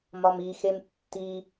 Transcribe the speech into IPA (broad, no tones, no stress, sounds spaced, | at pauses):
m ɒ m i x e m tː i